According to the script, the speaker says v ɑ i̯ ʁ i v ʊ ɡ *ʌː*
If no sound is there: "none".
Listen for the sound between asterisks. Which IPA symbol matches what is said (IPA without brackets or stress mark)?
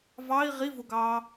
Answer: ɑː